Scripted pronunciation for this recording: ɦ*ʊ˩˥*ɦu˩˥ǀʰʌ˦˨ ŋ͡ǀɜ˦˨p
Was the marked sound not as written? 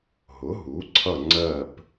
no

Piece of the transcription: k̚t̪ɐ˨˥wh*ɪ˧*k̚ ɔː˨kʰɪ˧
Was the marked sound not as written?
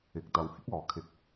yes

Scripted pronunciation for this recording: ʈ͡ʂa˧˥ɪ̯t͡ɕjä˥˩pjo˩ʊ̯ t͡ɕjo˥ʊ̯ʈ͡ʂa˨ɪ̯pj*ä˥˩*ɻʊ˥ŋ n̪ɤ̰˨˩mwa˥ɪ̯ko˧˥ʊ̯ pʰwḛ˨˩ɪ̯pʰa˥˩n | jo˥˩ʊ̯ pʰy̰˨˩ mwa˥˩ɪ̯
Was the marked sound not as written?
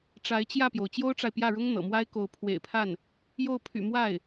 no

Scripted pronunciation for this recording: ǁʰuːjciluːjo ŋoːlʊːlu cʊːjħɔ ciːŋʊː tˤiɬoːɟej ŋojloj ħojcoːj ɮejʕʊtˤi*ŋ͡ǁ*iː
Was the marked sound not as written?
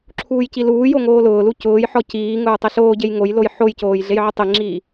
no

